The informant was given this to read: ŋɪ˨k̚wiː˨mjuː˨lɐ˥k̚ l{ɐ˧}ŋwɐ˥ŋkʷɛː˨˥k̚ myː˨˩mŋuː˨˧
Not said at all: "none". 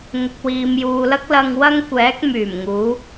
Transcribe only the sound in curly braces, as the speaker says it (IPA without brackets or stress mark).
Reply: ɐ˧